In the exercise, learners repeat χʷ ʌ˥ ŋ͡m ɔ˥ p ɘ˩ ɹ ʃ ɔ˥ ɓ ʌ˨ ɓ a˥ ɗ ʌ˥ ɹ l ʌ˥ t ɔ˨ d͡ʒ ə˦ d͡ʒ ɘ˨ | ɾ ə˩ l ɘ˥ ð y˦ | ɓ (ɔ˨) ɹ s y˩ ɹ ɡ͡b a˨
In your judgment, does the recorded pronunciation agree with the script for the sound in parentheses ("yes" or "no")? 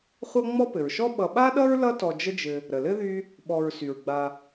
yes